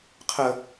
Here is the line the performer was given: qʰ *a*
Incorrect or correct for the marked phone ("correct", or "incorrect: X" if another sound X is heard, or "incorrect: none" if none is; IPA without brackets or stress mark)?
incorrect: ə